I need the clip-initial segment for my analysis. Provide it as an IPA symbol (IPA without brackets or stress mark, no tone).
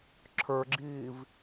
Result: ǁʰ